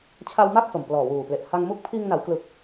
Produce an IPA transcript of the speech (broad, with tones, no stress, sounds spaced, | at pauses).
t͡ɕʰ a˧ w m a˥˩ k̚ s o˨˩ m p l ɔː˨˩ w uː˨˩ p l e˨˩ ʔ h a˧ ŋ m u˦˥ k̚ pʰ iː˧ ŋ n a˩˦ w k l ɯ˨˩ k̚